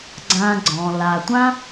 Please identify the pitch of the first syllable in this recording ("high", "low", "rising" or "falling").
low